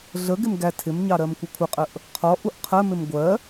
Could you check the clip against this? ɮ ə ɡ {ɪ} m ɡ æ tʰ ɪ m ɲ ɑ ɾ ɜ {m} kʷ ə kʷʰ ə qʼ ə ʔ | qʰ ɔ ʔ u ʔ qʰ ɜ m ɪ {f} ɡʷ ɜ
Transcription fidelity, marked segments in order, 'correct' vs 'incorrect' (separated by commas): correct, correct, incorrect